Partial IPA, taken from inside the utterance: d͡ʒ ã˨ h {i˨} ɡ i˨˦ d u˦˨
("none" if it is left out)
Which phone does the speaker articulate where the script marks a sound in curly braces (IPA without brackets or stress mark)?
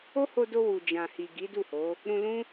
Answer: i˨